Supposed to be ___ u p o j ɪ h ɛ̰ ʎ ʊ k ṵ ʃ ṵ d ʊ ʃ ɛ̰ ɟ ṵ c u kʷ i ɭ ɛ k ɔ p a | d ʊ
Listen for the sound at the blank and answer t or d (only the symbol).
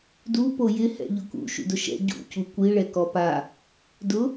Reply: d